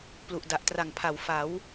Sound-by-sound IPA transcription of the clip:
p l u˨˩ ʔ d a˨˩ ʔ t r a˨˩ ŋ pʰ a˨˩ w f a˩˦ w

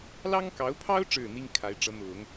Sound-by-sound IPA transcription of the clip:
l ɑ˥ ŋ k ɑ˧˥ ʊ̯ pʰ ɑ˥ ʊ̯ ʈ͡ʂ ɻ̩˥˩ n̪ i˥ ŋ kʰ a˧˥ ɪ̯ ʈ͡ʂ ɤ˧˥ n̪ ʊ˨˩˦ ŋ

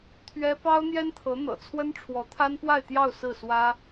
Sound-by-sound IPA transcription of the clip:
t̪ʰ ɥ ɛ˥ p ɑ˥ ʊ̯ n̪ j ɛ˥ n t̪ʰ ɤ˧˥ n̪ ɤ̰˨˩ t͡sʰ w ə˥ n ʈ͡ʂʰ w ɔ˧˥ t̪ʰ a˥ n p w a˥˧ ɪ̯ t̪ j ɑ˥˧ ʊ̯ s ɹ̩˥˩ s w ä˥

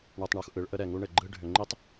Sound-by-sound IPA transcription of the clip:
ɳ ɯ˨ tˤ ɳ u˨ x ʔ ɯ˨˦ ɭ ʔ ə˦ ɾ ɛ˨ ŋ u˦ ɳ ɘ˨ ɡ͡ǃ ɯ˦ ɖʱ ʏ˨ ŋ͡ǃ i˦ tˤ

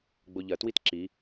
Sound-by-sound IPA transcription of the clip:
ɡ͡b o ʎ ɐ t w i t ǁ i

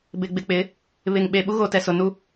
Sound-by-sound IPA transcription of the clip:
b ɪ˨ ɡ͡b ɪ˨ k͡p ɪ˨˦ | β ɪ˨ ŋ ɓ e˨ ɓ u˦ ɣ o˨ t ɛ˨ s ʊ˨ n u˦

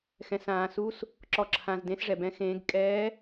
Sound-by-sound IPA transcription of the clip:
x ɛ̃˨ s ãː˨ s u˧˥ s | ǁ ɔ˨ ǁʰ ã˨ z d ẽ˧˥ s ʐ ɛ˨ b ɛ̃˧˥ x ẽː˧˥ ɡ kʼ ɛː˧˥

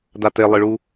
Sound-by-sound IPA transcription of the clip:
d a t e lˠ ɨ ɭ u

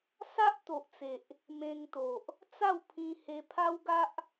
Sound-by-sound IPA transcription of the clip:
s a˦ ʔ t̪ o˨ ʔ t͡s e˨ ʔ | m ẽ˧ ŋ t̪ o˨ ʔ | t͡s a˥˧ w pʰ ĩ˧ h e˧ pʰ a˦ w ɡ a˦ ʔ

